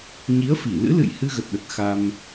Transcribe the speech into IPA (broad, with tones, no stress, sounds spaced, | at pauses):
ɲ i˨˦ ə̯ f i˧˩ l ɨ̰˧˥ l ɨ̰˧˨ j h ɨ˧ ɣ ə˨˩ t̚ ɗ ə˨˩ t̚ x a˧ m